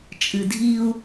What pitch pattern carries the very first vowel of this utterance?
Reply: low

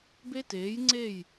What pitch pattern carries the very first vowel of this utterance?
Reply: high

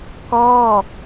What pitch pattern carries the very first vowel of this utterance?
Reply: falling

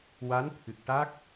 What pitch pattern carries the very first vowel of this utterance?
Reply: rising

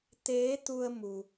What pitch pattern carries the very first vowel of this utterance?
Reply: rising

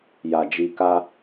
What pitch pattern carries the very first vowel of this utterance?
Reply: low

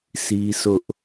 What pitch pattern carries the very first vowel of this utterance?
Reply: high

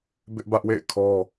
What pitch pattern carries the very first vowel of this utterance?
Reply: high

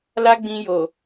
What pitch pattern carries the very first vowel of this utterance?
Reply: high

